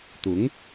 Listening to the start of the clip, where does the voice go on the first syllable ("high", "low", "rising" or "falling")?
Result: rising